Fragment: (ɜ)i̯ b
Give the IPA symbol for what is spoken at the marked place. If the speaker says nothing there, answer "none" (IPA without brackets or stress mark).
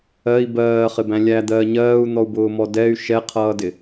ɜ